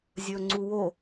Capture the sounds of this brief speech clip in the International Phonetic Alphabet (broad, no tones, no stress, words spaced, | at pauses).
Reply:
zʲɵːŋ͡ǀuwo